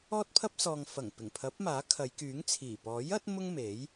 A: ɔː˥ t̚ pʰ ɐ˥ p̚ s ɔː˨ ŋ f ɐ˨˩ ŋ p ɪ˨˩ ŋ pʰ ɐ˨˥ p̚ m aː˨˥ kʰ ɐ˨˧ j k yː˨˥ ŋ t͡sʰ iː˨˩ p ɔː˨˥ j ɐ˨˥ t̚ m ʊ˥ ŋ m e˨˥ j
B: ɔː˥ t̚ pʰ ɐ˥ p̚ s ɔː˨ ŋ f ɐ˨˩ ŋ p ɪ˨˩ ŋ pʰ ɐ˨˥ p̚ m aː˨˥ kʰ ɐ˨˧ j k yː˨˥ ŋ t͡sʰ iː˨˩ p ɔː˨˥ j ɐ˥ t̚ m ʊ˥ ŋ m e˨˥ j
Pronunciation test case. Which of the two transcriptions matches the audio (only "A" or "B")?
A